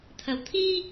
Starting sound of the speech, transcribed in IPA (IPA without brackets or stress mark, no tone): t̪ʰ